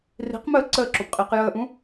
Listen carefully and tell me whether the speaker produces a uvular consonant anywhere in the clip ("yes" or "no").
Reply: yes